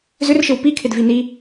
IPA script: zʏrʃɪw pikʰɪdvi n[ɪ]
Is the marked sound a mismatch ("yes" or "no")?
yes